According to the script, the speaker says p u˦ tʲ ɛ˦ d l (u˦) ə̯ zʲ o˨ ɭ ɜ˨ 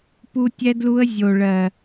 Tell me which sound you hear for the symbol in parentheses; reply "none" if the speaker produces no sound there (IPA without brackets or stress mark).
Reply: u˦